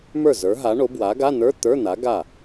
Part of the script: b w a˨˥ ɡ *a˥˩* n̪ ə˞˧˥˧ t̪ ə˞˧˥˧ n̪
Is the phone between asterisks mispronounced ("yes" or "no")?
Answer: yes